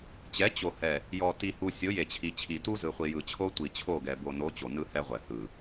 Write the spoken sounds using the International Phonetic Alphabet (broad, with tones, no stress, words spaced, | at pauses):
t͡ɕɛ˨˦ t͡ɕo˨hɛ˨ | jɔ˨ ti˨hu˨ sʲo˨˦je˨t͡ɕʰi˨t͡ɕʰi˨ tu˦ zɯ˨χʷi˨jɯ˨t͡ɕʰo˦ tʷi˨t͡ɕʰo˦˨ɡɛ˨ bo˨no˨˦ t͡ɕo˨nɯ˦hɛ˦ʁʷɛ˨ hɯ˨